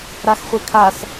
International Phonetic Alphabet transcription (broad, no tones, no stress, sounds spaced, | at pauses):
ɾ a x χʷ e kʰ a s